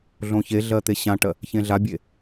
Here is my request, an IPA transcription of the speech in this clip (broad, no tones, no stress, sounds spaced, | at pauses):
ɮ õ ç e ɮ ɜ t̪ e ɕ ã ʈ ɜ | ç ẽ ɮ a bʲ e